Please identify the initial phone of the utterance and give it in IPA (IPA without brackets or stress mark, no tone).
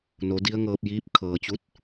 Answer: n